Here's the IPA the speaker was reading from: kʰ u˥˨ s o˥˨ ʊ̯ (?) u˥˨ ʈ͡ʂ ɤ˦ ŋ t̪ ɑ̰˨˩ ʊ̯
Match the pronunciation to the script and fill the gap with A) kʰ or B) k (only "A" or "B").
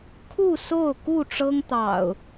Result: B